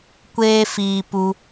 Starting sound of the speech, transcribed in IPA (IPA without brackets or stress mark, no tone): kʷ